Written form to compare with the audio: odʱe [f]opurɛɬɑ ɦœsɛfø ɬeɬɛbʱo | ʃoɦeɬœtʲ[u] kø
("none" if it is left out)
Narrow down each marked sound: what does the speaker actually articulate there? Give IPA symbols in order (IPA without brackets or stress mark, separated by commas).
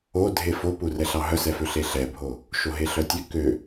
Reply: f, ø